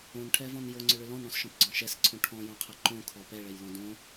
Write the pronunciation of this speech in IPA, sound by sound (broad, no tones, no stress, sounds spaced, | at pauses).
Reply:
õ n ʈʰ ɛ v ɔ̃ n j o ŋ͡ǀ ʏ ɭ ʏ l ɔ̃ n ɽ ɔ̃ s ʃ ɔ̃ p ɡ͡ǀ ɔ̃ ʃ ɛ s ǀʰ õ ʈʰ ɔ̃ j õ qʰ ɛ ǃ õ kʰ ɔ p ɛ ɭ ɛ j l ɔ̃ d õ